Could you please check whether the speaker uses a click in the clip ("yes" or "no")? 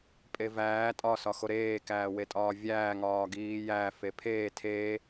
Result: no